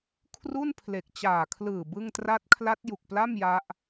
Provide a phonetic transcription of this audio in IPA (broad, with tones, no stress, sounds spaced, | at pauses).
kʰ r u˥˩ n pʰ l e˨˩ k̚ t͡ɕ aː˨˩ kʰ l ɯː˨˩ b ɯ˥˩ ŋ t r a˦˥ t̚ kʰ l a˦˥ t̚ j u˨˩ k̚ p l a˥˩ m j a˦˥ ʔ